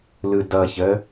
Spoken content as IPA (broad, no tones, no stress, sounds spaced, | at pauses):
l ɯ d ʌ ç ə